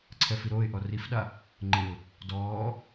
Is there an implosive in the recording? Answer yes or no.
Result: yes